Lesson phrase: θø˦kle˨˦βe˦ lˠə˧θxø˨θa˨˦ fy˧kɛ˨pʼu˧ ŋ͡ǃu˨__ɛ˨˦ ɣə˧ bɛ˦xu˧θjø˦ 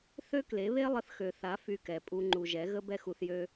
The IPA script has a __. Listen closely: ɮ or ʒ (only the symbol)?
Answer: ʒ